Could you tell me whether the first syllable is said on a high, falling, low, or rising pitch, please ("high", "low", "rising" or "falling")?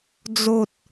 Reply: high